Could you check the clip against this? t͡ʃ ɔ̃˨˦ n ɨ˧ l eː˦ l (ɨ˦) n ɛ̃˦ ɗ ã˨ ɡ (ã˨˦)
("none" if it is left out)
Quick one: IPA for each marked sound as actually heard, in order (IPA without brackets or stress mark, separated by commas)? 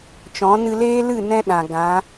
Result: ɨ˦˨, ã˨˦